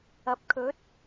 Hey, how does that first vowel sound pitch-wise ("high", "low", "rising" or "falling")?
rising